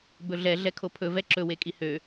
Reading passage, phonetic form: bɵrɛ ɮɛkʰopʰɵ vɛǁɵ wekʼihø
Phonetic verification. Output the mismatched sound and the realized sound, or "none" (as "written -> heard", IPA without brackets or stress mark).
r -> ɮ